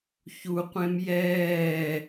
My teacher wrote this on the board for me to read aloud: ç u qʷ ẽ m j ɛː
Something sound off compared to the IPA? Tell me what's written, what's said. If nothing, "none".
none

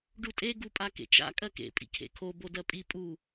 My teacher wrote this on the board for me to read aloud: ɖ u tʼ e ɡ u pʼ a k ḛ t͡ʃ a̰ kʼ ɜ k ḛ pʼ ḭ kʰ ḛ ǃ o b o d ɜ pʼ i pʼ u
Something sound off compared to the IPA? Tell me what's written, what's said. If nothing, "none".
ǃ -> kʰ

